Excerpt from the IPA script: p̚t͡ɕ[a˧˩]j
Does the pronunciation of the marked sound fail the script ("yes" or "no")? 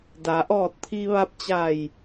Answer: no